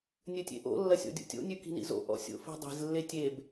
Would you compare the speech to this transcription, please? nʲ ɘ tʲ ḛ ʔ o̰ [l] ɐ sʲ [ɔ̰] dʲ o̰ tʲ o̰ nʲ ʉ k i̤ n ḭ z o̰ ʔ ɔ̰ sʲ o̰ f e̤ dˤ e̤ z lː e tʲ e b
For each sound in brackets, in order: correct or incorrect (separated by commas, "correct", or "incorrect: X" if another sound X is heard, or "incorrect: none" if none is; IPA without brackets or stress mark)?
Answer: incorrect: lː, correct